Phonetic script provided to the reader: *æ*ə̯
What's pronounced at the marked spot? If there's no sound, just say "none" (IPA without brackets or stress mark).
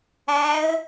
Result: æ